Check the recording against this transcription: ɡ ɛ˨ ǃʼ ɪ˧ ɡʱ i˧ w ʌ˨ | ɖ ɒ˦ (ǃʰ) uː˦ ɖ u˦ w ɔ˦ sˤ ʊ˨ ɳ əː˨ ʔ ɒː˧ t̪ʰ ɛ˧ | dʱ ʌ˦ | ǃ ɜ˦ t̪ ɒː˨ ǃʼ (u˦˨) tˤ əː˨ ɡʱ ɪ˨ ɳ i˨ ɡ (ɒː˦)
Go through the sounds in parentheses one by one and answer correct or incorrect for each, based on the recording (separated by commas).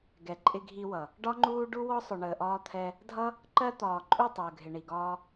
incorrect, correct, correct